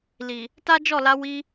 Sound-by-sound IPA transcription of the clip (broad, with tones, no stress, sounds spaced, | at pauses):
l i˨ | t a˦ d͡ʒ ɔ˦˨ l a˧ w i˧